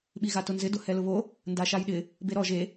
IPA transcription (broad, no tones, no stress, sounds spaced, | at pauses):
ɓ i ɣ a t ʊ n z ɪ d ʊ h ɛ l ʊ β o | n d a ʃ a j ɗ ɪ | b e ɾ ɔ ʒ e